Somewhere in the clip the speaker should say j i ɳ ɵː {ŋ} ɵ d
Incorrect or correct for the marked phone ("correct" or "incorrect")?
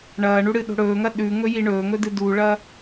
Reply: correct